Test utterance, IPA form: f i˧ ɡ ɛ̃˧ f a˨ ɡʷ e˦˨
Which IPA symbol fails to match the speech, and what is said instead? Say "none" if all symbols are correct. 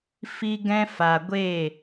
none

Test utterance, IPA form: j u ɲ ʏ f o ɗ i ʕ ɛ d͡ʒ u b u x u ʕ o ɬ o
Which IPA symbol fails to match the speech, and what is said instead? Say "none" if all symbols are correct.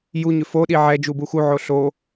none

